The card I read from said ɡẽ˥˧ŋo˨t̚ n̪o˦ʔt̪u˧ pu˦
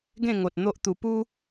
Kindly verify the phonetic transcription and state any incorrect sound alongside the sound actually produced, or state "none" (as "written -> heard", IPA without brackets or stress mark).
none